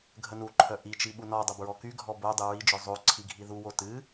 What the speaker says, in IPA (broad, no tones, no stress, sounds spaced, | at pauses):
ɡʱ ə n u ǃʰ œ ʔ i t͡ʃ i ɓ u n ɔ dˤ ə b ɹ ɔ k y ɡʱ ɔ b o dˤ ɨ ɹ i d͡ʒ œ zˤ o ǀʰ i ɡʱ i ð u w o t ɨ